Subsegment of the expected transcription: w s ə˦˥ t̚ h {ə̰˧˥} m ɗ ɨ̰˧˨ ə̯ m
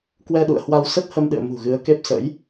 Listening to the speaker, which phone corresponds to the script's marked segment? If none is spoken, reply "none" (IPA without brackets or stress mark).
ə˧